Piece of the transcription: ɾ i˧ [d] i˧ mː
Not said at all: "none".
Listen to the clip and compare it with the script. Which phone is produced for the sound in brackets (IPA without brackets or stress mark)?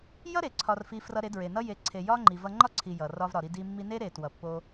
d